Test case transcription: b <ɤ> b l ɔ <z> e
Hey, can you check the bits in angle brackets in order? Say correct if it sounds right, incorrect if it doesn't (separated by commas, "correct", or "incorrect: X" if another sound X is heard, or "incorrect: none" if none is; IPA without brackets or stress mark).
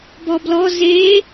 incorrect: ɔ, correct